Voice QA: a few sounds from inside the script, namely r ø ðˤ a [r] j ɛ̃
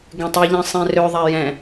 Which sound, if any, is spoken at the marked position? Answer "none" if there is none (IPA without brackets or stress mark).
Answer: none